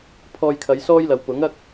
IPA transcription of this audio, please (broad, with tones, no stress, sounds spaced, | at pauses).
pʰ ɔː˧ j kʰ ɐ˨˧ j s ɔː˥ j l ɐ˨ w p ʊ˨˥ ŋ ɐ˥ k̚